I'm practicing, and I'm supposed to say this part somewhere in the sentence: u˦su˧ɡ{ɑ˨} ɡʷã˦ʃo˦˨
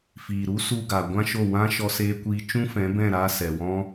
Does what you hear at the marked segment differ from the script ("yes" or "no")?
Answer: yes